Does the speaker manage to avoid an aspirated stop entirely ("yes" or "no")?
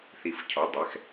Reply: no